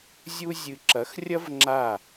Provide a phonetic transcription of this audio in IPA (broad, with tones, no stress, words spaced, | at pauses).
zʲu˦zʲɨ˧ ǁɐ˨˦xrʲɐ˦v ŋ͡ǁa˦˨